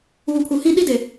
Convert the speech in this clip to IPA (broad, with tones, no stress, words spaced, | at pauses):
uː˨pʰu˨hĩ˦ ɗi˦de˨